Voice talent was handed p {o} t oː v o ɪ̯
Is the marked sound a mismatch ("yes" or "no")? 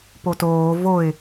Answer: no